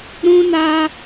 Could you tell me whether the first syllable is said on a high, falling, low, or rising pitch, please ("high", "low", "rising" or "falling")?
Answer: high